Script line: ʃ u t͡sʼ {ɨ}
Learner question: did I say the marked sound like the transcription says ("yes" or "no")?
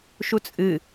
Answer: yes